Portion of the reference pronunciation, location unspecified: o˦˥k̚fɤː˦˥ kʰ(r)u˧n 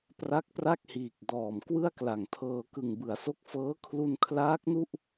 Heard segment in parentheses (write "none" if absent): l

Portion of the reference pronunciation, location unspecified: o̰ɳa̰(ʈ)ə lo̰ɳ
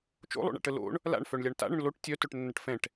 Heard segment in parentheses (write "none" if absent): ʈ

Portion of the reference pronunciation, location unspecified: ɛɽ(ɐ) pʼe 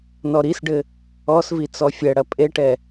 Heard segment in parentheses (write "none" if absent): ɐ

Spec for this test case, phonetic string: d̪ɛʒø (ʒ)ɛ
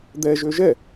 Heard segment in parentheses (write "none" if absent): ʒ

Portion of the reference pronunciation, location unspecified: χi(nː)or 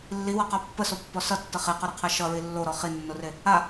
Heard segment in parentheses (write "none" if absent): nː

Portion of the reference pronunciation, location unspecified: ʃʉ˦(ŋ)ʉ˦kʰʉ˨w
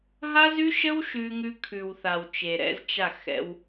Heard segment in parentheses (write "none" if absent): ŋ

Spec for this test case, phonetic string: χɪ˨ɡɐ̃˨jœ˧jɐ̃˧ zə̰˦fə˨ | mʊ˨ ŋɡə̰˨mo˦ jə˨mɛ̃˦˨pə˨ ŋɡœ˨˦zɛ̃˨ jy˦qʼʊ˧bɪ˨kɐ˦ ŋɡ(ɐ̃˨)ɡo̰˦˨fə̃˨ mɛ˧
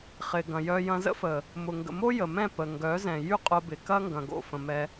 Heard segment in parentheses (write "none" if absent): ɐ̃˨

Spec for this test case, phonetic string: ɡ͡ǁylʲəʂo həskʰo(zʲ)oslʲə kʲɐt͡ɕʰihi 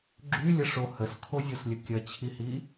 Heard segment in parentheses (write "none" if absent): zʲ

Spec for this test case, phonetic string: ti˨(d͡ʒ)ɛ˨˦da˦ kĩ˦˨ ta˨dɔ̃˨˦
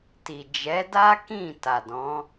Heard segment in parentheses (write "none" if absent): d͡ʒ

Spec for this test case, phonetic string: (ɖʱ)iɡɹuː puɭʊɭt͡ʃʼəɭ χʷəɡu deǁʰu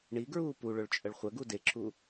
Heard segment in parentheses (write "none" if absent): ɳ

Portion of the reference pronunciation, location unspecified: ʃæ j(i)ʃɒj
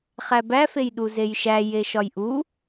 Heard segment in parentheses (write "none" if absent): e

